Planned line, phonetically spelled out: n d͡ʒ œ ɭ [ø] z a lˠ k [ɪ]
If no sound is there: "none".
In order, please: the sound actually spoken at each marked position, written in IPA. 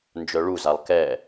u, ɛ

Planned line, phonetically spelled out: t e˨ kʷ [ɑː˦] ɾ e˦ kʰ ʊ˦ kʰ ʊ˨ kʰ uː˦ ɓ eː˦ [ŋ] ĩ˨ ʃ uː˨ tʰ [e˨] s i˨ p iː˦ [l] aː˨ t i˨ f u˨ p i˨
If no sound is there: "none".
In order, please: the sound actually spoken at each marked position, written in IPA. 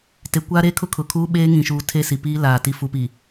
aː˦, ŋ, e˦, l

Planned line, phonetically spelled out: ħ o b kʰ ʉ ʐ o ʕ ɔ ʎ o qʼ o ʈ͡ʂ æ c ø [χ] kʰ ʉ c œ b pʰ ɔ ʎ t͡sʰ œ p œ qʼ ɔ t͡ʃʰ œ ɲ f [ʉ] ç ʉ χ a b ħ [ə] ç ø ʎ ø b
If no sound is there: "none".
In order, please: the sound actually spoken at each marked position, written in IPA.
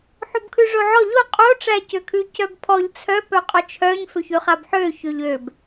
none, ø, ø

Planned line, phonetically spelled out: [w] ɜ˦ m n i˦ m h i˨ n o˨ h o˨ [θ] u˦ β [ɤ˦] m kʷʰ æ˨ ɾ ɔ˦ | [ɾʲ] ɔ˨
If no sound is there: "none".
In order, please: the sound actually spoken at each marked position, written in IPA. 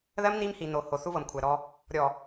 ð, θ, ɤ˨, ɾʲ

